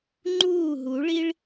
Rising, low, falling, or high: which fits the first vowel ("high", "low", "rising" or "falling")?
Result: falling